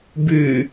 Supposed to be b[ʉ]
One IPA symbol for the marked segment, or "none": ʉ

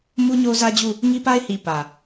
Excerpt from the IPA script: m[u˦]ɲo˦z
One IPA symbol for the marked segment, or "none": u˦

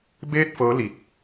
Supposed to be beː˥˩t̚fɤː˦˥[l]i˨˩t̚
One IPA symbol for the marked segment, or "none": l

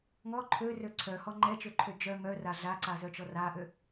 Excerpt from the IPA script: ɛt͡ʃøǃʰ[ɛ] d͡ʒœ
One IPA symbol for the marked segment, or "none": ø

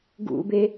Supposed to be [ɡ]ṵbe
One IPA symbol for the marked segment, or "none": ɡ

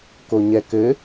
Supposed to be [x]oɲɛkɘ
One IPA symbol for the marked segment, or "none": k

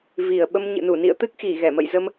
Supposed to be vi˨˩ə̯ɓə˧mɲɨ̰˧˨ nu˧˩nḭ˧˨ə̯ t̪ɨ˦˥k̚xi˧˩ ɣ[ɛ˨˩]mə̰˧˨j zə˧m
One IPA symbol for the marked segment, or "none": ɛ˧˩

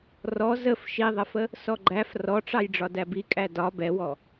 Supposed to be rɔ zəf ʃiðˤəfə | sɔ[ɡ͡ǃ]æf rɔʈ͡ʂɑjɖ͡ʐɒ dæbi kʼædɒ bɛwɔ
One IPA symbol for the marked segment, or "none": ɡ͡ǃ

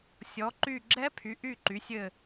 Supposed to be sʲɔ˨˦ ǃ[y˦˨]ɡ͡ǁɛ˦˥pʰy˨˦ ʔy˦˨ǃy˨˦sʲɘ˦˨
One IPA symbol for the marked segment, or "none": y˦˨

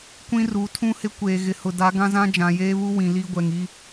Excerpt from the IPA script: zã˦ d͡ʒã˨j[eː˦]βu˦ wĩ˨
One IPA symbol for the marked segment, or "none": eː˦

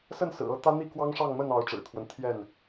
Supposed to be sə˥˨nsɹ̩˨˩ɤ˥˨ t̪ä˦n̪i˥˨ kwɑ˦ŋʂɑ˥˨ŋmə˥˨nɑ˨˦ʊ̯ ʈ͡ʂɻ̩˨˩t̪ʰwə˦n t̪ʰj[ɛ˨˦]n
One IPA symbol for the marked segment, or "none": ɛ˥˨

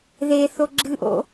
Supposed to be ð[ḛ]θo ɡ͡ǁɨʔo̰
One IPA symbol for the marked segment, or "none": e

